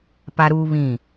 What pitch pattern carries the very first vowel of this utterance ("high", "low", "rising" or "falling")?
high